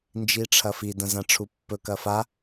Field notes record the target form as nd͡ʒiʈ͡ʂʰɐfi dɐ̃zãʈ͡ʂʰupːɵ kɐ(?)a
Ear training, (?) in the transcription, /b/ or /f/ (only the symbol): f